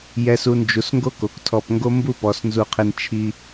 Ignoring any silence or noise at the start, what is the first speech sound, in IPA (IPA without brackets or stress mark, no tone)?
j